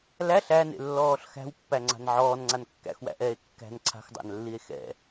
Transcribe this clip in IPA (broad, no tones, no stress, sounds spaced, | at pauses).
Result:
l æ ɬ æ n ḛ lː ɔː ɬ x æ̤ w pː æ ŋ͡ǀ a̤ n ʕ ɔː n ŋ͡ǀ a n kː æ̰ x w æ̰ ʔ ɛː e̯ kː æ̤ n ǀʰ a̤ x dˤ æ̰ n lː i e̯ x ɛ̰